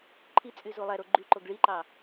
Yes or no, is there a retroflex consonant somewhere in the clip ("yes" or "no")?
yes